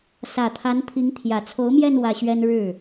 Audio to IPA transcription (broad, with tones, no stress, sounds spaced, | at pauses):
s ä˨˩ t̪ʰ a˧˥ n t̪ʰ i˧˥ ŋ t̪ʰ j ä˨˩ t͡sʰ o˧˥ ʊ̯ m j ɛ˥˧ n w ä˥˩ ɕ ɥ ɛ˥ n ɻ ɻ̩˥˩